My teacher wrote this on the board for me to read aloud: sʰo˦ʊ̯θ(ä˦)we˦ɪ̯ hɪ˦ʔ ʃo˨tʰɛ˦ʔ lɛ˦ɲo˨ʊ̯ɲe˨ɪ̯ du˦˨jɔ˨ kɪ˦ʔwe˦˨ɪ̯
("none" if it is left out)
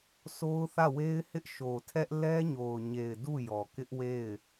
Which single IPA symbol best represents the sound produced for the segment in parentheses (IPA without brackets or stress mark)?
ä˦˨